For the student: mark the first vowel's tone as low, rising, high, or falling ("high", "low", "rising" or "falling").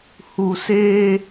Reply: low